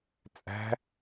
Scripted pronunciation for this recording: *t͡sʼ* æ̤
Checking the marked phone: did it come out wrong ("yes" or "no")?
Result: no